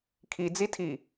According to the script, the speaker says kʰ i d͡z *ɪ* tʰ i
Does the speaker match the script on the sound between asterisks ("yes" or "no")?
no